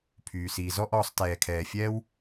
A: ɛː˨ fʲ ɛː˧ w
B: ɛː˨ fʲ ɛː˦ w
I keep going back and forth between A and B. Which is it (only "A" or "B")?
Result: B